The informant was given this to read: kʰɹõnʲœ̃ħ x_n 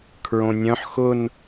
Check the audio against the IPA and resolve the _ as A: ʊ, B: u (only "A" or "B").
A